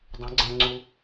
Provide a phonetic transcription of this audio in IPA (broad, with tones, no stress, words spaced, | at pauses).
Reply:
dˤẽ˨˦ɡ͡ǀæ̃˧ŋ͡ǀu˧